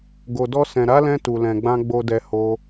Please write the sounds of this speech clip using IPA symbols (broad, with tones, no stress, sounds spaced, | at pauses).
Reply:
ɡ o˨ d ɔ˧ s ɛ̃˨ ɾ a˨˦ l ɛ̃˧ t u˨ l ɛ̃˨ ɡ͡b ã˧ ɡ͡b o˨ d ɛ˨ h o˧